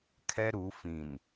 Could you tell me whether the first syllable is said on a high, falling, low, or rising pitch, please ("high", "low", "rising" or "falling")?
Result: high